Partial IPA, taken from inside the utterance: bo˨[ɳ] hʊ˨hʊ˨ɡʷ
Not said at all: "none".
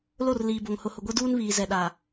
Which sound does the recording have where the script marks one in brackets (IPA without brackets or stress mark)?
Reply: ŋ